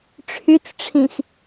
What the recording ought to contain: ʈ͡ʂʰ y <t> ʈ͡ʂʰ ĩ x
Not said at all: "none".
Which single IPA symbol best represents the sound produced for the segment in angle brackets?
t͡s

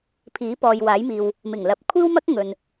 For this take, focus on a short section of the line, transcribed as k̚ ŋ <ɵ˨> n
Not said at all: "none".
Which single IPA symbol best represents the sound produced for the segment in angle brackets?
ɵ˨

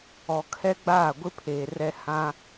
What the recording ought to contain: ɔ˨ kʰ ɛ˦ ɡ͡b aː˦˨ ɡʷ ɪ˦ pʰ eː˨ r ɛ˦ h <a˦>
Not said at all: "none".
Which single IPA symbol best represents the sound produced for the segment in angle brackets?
ã˦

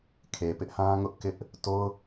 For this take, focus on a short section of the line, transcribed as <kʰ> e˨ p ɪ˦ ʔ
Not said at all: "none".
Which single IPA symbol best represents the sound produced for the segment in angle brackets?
kʰ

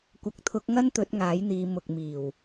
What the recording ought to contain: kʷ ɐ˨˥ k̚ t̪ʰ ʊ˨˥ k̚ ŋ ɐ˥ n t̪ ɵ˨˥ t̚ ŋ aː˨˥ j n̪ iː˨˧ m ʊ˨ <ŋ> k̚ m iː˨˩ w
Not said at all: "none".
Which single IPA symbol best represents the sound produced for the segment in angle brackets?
none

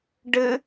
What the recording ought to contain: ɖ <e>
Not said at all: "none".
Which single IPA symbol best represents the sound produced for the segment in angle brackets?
ɘ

